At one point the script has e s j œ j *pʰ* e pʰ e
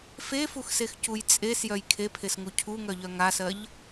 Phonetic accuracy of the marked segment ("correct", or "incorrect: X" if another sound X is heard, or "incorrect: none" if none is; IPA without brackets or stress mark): incorrect: kʰ